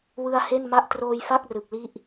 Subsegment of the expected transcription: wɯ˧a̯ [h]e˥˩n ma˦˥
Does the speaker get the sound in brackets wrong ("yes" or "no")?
no